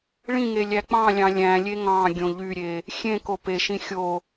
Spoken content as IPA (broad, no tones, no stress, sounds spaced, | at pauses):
ɭ ĩ ŋ e lʲ æ k͡p ɑ̃ lʲ ɑ̃ lʲ æ̃ lʲ e ŋ ɑ̃ ɡʲ õ ʎ y ɾʲ e | xʲ ẽ k o p e ʃ ĩ xʲ o